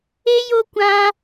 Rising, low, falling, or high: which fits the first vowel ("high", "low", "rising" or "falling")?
high